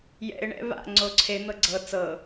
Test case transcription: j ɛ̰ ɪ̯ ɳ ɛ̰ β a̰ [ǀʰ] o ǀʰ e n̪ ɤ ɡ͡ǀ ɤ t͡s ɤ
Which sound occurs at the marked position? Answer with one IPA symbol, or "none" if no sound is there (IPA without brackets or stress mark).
ŋ͡ǀ